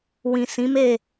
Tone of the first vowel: low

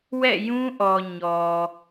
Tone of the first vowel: falling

